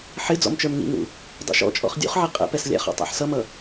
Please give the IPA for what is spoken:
ħ ɪ d͡z ɔ̰ m t͡ʃ ə˞ m ŋ ḭ ŋ ṵ | dˤ ṵ ʃ ɔ̰ t͡ʃʼ ɔ̰ χ dʲ ṵ χ ʕ i qʼ ɛ̰ p ɛ s lʲ æ̰ χ ɔ̰ tˤ æ̰ ħ s ʌ m ʌ

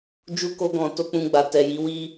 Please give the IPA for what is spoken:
d͡ʒ u˧ k o˧ ɡ ɔ̃˨ t o˧ k͡p ũ˧ ɡ͡b a˨ t ɛ˨ j i˨˦ w i˦

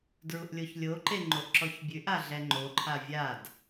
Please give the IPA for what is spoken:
d ɹ u ʔ lʲ o ç lʲ o ǃ e ŋ͡ǃ o ʔ ǁ ɔ ç bʲ ʉ ʔ a ɮ ɛ ŋ͡ǃ o ǃʰ a vʲ a d

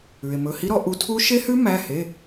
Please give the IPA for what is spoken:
ʉ˩ e̯ m ɵ˩˧˩ h i˦˥ ɾ ɔ˨˦ ʔ u˨˦ tʰ u˦˥ ʃ e˦˥ h ʉ˦˥ m æ˩˧˩ h e˩˧˩

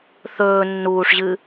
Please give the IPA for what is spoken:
θ ɵː nː uː ʂ ʑ ɨ

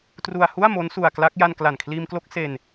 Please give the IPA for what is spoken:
t r u˧ a̯ h u˥˩ a̯ m o˦˥ n s u˧ a̯ k l a˦˥ k̚ j a˧ n k l a˨˩ n kʰ l iː˧ m k l o˥˩ k̚ s e˧ n

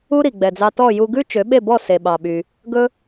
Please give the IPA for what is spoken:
u˥ ɾ i˩ ɡ͡b ɛ˩ d͡z ɑ˧ t ɔ˥˩ j u˧ ɡ ʉ˥ t͡ʃ ø˩˥ ɓ e˥˩ b ɔ˥˩ s e˩ ɓ ɑ˩ ɓ y˩ | ɡ ɵ˥

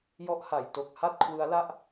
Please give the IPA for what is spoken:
j ɔ˦˥ ʔ h a˨˩ j t o˨˩ k̚ h a˥˩ t̚ kʰ w ɯ˦˥ a̯ l a˥˩ ʔ

